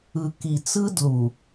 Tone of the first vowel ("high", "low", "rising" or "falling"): low